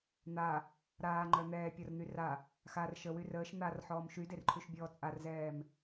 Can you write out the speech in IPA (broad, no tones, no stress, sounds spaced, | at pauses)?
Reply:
n̪ a | ɾ aː ŋ͡ǃ œ n̪ ɛː pʲ ɒ r n̪ y r a | x a r ʃ ə w y r əː ʃ n̪ a r ħ ɔː m ʃ y d e r ǃʰ y ʃ bʲ ɔː t͡sʼ a r z ɛː m